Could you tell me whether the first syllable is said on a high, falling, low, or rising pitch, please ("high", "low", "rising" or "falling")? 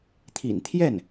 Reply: low